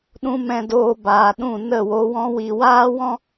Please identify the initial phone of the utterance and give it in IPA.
ɗ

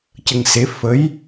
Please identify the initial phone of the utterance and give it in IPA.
c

